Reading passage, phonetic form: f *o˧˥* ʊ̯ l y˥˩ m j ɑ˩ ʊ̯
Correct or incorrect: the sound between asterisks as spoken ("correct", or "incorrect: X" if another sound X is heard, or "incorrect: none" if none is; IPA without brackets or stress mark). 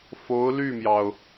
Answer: correct